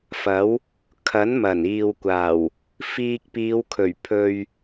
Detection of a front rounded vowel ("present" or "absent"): absent